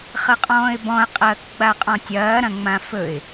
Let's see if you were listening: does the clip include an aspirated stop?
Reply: no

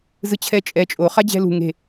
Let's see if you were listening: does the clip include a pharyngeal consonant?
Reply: no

